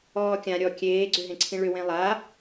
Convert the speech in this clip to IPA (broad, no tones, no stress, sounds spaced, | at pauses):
ɔː kʲ ã ɾʲ ɔ kʲ eː ɡ͡ǀ ʏ ɦ ẽ ǀʰ ĩ ɭ ʏ w ẽ lˠ a